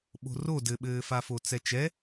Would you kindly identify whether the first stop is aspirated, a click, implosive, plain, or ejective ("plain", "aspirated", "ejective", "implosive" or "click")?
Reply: implosive